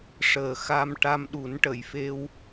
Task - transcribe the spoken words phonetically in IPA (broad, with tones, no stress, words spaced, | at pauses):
ʂəː˨˩xa˧m ʈa˧mɗu˨˩˦nʈə˨˩˨jfe˧w